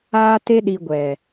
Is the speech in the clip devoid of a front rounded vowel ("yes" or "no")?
yes